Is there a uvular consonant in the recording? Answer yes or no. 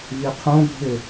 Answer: yes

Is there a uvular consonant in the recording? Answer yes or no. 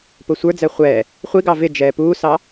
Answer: yes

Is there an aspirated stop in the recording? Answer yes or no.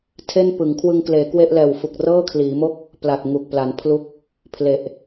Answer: yes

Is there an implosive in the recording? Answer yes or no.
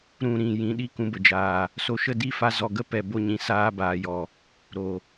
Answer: yes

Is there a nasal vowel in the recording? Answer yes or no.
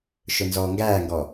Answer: no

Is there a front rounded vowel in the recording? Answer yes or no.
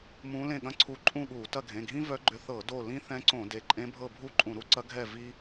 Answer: yes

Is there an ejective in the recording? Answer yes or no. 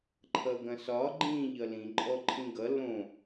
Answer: yes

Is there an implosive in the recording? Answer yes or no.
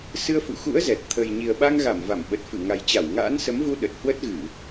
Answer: yes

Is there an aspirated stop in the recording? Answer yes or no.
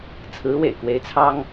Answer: yes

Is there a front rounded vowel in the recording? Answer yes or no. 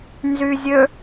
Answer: yes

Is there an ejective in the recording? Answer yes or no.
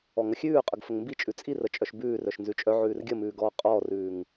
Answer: yes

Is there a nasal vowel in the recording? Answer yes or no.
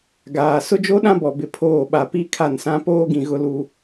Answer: yes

